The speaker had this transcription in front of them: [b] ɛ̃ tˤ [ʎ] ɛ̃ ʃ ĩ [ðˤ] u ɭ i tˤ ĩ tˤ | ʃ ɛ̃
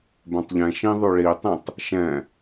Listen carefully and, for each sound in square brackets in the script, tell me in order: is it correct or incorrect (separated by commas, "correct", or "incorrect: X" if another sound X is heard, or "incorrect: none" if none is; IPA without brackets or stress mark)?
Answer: correct, correct, correct